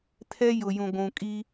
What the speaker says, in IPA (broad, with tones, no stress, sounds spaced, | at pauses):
tʰ ɛ˦ j ʊ˨ j ũ˨ ɡʷ ũ˨ kʼ i˦